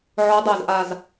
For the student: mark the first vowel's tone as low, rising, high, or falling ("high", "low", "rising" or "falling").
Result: rising